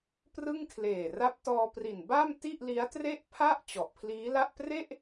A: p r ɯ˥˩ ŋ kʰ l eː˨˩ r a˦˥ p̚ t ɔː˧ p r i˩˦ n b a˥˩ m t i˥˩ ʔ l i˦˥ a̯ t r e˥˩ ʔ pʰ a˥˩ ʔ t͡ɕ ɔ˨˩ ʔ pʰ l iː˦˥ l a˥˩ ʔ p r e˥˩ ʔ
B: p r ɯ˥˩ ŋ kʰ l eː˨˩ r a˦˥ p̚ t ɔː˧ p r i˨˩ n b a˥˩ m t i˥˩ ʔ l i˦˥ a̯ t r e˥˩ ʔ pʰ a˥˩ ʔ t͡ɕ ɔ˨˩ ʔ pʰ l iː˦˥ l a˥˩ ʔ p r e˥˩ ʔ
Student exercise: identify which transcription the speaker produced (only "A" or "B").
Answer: B